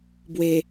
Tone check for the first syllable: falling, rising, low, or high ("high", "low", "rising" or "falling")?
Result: low